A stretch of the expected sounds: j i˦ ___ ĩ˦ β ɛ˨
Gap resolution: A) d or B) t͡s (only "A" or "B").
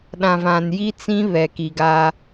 B